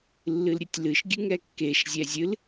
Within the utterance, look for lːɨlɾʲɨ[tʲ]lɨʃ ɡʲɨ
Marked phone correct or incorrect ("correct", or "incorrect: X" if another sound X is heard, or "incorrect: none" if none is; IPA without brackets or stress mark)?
correct